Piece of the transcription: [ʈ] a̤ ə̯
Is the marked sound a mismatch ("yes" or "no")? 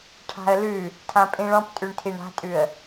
yes